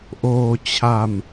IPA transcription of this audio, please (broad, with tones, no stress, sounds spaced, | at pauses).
ʔ oː˧ t͡ɕʰ a˧ m